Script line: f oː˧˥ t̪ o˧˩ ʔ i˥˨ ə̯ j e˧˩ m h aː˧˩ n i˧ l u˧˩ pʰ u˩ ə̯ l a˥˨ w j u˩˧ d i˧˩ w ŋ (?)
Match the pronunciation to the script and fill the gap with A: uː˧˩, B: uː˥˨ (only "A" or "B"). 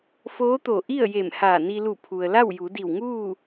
B